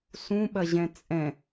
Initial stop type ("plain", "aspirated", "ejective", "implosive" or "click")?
implosive